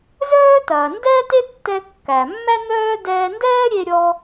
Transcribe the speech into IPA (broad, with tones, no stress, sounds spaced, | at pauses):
z œː˥ t ɐː˩ n d ɛː˥ t e˥ tː ɛ˧ kː æ˩ mː æ˥ n̪ œː˥ d ɛː˧ n d ɛː˥ ɾʲ e˧ ɾʲ ɔ˧